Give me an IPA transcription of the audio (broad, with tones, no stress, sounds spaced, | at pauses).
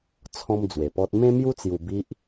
t͡sʰ ɔ̃˦ m d͡z w e˧ p ɔ˦ t̚ m ẽ˦ m j u˦ t͡s j u˧ b i˦ ʔ